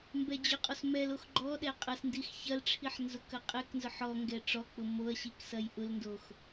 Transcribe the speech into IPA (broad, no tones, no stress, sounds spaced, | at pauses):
m b ɛ d͡ʑ ʊ qʼ ɔ s m ɛ l o x ɡ͡ǃ ɔ ɗ ɛ qʼ ɐ s n d i x ç ɐ l ʈ͡ʂʰ i ħ n z ʊ k ɐ qʼ ɛ k n z ʊ ħ ɔ ŋ ɡ ɛ ʈ͡ʂ ɔ k͡p ʊ m o ɐ̯ ɕ i k s ɐ j ʔ ʊ l n d o x